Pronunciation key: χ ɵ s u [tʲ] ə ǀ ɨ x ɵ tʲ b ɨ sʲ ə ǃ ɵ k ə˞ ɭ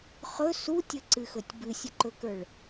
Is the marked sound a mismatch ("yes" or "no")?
no